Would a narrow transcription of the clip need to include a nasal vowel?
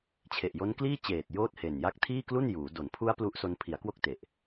no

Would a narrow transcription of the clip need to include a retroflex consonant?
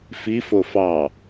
no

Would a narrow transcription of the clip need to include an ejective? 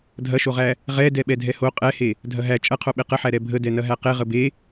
yes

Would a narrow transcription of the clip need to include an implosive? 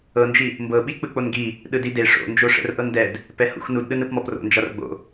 yes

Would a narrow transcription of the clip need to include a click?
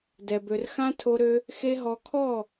no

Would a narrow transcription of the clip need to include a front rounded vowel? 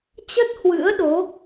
no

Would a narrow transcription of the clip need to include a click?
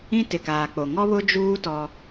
no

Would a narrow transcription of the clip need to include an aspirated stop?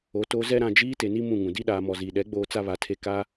yes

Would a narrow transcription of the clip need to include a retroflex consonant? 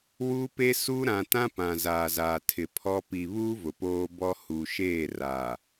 no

